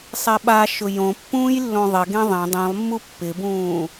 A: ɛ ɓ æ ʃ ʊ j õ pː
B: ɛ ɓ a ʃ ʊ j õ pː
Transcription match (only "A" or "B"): B